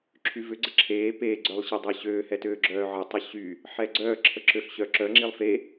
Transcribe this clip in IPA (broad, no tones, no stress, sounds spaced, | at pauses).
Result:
ǁʰ y v ʏ ɡ͡ǀ ə ǁʰ eː p eː ɡ͡ǀ œ lˠ ɕ e dˤ əː ɕ øː h ɛ t øː ɡ͡ǁ œː ʕ ə tˤ ə ɕ y | ħ ɛ ɡ͡ǀ œː ǁʰ ə ǁ ø ɬ ɕ œ ǁ œ ŋ͡ǁ i lˠ f e